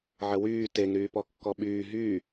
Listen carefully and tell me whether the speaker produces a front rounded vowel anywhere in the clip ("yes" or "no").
yes